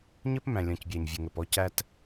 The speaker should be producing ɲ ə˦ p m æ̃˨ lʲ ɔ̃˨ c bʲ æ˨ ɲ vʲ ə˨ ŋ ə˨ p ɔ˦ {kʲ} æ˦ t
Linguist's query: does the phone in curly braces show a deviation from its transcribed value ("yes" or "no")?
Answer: yes